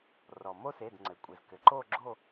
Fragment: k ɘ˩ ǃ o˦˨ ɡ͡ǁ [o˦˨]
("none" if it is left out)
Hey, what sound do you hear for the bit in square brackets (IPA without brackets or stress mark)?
o˦˨